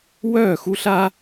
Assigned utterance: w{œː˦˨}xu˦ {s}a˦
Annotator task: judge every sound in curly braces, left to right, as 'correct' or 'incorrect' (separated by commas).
correct, incorrect